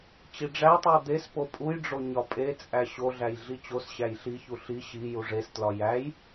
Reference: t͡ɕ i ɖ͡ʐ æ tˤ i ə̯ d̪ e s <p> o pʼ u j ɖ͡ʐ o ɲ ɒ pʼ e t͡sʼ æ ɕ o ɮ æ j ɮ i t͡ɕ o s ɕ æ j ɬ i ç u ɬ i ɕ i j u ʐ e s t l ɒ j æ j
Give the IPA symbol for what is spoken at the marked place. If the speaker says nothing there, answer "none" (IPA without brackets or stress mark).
p